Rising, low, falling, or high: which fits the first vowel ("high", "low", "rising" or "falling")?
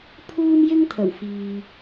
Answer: high